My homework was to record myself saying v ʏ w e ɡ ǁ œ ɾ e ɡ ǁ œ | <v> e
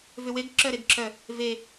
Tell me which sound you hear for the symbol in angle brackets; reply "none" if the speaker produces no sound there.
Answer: v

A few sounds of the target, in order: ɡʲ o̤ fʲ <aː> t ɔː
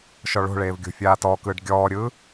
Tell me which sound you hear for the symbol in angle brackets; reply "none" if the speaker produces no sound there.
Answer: aː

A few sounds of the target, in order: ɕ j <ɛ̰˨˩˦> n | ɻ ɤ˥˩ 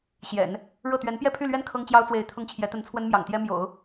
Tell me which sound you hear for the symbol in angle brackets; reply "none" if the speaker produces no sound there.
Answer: ɛ̰˨˩˦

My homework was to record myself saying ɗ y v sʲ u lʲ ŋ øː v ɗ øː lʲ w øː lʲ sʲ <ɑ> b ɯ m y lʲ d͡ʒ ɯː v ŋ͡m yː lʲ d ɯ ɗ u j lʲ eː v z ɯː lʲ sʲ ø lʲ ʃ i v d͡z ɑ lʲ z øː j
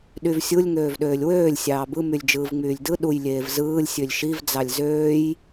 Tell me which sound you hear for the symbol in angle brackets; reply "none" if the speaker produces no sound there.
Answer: ɑː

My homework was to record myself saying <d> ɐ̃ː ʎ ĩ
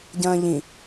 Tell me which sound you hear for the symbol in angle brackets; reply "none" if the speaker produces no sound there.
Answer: ɟ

